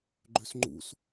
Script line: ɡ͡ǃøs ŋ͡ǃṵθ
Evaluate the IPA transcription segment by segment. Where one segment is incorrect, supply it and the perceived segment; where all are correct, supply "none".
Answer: θ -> s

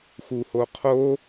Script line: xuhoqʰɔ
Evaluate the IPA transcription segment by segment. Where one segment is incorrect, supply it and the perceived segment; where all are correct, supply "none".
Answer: ɔ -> o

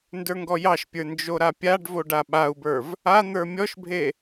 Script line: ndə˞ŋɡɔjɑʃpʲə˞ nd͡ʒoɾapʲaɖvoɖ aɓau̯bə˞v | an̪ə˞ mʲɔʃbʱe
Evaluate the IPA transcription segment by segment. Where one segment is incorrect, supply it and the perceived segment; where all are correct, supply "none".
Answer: none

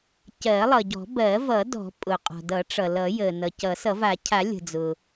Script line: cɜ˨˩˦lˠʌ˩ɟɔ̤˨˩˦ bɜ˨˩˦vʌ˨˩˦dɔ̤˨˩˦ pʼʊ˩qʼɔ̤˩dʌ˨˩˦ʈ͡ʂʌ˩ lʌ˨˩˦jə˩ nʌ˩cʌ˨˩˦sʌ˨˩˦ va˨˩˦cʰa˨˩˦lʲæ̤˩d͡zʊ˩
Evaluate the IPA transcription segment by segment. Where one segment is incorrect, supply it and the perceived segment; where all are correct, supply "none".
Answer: æ̤˩ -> ə̤˩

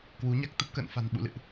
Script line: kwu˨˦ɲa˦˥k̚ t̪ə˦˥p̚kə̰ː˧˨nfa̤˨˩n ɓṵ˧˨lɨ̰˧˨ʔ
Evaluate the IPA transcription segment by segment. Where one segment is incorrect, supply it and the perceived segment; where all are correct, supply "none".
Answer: none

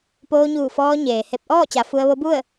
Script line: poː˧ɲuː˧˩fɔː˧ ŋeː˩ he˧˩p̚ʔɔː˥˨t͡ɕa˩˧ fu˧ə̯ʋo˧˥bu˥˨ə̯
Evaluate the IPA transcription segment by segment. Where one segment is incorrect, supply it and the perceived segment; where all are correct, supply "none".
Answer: ŋ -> ɲ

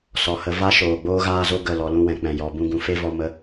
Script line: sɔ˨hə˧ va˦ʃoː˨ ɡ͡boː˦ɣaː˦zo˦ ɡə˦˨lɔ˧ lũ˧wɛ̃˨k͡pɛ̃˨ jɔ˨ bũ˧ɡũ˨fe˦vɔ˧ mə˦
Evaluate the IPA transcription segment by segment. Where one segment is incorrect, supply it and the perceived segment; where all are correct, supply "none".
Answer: none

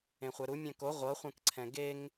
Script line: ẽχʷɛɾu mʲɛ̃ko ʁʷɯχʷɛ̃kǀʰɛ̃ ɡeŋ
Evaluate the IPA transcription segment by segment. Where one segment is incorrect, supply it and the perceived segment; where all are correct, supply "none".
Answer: ɯ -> ɤ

